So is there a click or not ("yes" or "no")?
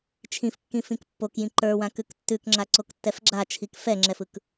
yes